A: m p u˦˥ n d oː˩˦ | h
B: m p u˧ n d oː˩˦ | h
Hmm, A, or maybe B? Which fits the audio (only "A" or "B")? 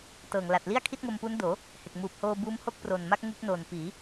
A